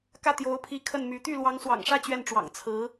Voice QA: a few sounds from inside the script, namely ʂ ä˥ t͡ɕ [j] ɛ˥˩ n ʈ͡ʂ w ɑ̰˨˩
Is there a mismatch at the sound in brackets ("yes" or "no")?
yes